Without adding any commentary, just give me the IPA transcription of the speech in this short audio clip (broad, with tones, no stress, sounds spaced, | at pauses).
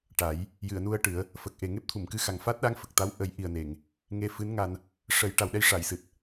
ʈ a˨˩˦ j | j ɨ˨˩˨ ə̯ n u˧ ə̯ ʈ ɨ˨˩˦ ə̯ | f ə˨˩ k̚ ʔ e˨˩ ŋ e˦˥ p̚ t̪ʰ u˨˩˨ m k ɨ˧ x a˨˩ ŋ f aː˦˥ t̚ ɗ aː˧˥ ŋ f ə˨˩ k̚ t̪ a˧˥ w ʔ ə˨˩˦ j ʔ i˨˩ ə̯ n e˨˩˨ ŋ | ŋ e˧ f ɨ˧˥ n ŋ a˧ n | ʂ ə˨˩˦ j ʈ a˨˩ w ɗ ɛ˧ j ʂ a˨˩˨ j s ɨ˨˩ t̚